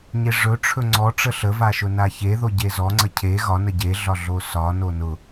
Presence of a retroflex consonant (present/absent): present